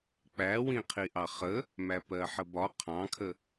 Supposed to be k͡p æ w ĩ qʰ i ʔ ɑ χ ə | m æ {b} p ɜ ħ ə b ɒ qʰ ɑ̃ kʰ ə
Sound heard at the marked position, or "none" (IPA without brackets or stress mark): none